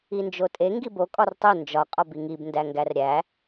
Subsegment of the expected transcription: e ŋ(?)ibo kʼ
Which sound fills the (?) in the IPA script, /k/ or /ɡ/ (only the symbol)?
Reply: ɡ